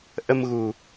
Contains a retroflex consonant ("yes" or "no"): no